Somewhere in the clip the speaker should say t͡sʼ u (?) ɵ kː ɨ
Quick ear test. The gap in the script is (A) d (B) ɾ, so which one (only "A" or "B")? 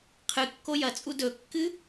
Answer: A